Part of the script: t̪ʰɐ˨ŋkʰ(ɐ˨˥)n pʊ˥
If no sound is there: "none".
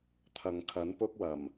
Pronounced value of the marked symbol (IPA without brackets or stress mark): ɐ˨˥